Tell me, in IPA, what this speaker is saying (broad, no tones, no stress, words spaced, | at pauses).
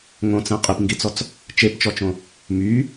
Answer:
ŋõt͡sɛ̃ qʼipŋɡit͡sɔt͡s | t͡ʃept͡ʃɔt͡ʃõ | my